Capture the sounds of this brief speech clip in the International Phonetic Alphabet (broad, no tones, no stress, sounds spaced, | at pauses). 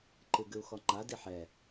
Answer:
ǃ ɨ ɡ ɨ u̯ x ɔ ŋ͡ǃ a d i ħ ɛ